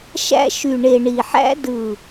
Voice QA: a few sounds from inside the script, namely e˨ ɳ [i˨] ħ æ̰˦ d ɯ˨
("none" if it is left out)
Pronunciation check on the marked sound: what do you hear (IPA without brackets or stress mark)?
i˨